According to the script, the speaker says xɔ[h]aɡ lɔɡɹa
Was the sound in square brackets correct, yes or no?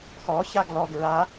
no